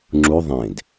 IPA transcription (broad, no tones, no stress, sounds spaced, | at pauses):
ŋ͡ǁ u ðˤ ẽ d